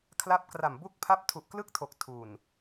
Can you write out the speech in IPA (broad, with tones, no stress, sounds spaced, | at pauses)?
kʰ l a˦˥ p̚ k r a˨˩ m b u˥˩ k̚ pʰ a˥˩ p̚ tʰ u˨˩ ʔ k l ɯ˥˩ k̚ tʰ o˨˩ k̚ tʰ u˨˩ n